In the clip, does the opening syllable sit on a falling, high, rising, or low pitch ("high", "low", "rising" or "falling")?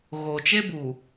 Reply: low